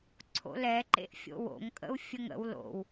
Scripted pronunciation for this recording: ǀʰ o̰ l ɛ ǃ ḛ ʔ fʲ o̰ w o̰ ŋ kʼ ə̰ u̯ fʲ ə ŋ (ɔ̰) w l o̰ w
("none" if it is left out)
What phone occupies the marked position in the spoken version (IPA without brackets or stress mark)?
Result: ə̰